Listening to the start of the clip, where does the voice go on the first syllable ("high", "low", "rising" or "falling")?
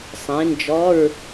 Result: rising